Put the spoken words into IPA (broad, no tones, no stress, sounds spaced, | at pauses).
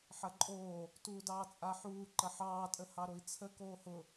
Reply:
ħ ɐ ǃʼ oː | t uː d ɑː t͡sʼ a ħ uː ǃ ɐ ħ ɑː tʼ ə h ɑ ɾ o i̯ t͡sʰ ə k oː h ʊ